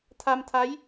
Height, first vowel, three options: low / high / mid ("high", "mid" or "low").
low